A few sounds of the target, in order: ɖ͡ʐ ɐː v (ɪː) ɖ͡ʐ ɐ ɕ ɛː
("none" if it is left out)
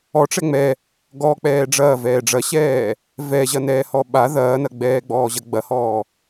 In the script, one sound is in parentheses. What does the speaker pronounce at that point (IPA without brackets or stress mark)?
ɛː